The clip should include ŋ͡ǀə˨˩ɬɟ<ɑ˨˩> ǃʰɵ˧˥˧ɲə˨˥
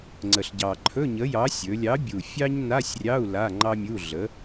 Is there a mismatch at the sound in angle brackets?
no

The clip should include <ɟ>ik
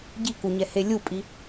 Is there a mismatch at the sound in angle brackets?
no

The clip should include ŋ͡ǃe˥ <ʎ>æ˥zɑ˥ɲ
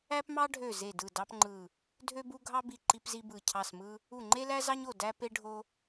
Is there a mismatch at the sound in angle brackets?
yes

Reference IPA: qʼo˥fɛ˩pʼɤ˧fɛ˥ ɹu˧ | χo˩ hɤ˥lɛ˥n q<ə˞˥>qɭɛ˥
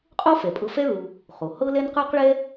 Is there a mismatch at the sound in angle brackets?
no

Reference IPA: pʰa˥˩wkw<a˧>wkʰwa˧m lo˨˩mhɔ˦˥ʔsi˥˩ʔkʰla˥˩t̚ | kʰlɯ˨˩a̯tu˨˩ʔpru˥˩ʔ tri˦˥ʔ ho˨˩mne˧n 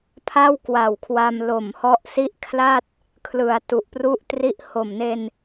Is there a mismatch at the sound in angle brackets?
yes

